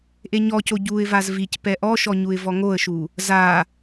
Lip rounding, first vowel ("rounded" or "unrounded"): unrounded